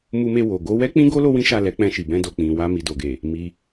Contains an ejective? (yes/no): no